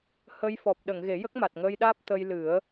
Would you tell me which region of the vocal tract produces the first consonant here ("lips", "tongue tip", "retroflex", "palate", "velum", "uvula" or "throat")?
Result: throat